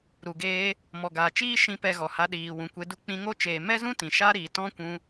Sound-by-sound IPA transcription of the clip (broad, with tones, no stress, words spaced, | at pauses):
ɾu˨ɡeː˧ | mɔ˨ɡaː˨t͡ʃiː˦ ʃĩ˦pɛ˧ ɣɔ˨ha˧ ɗiː˨wũ˨kʷe˧du˦ k͡pĩ˧ŋo˦t͡ʃeː˨ mɛ˦zũ˦ tĩ˨ʃa˦ ɾiː˨tɔ̃˦kʷũ˧